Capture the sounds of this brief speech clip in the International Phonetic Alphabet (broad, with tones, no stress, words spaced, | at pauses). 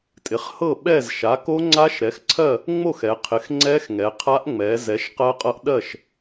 tʼɪ˩˧χhɤ˥˨ ɓɛ˥˨z ʃa˩˥ ko˦˥ŋ͡ǀa˦˥ʃ ɾɛ˩˥xǀʰɜ˥˨ | ŋ͡mo˥˨xɛ˩˧qʰɪ˩˥x ŋ͡ǀɛ˦˥x ŋɛ˩˧qʰa˦˥ʔ ŋ͡mɛ˩˧ zɛ˩˥ʃqɜ˦˥qʼɤ˦˥ʔ ɗɜ˥˨ʃ